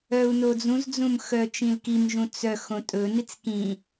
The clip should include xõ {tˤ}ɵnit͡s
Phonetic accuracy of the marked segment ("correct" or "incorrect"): incorrect